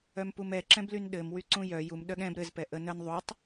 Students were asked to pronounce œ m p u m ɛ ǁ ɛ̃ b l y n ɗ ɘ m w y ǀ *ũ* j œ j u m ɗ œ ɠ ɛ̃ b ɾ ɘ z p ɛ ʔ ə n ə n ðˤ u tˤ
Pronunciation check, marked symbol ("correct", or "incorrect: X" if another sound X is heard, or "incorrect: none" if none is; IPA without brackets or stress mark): correct